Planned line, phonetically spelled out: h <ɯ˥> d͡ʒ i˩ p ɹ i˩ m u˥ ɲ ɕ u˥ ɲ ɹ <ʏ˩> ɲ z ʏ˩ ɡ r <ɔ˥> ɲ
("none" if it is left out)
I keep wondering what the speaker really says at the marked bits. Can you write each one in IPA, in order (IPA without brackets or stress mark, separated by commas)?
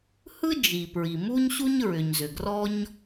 ɯ˥, ʏ˩, ɔ˥